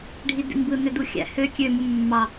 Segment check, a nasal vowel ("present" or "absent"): absent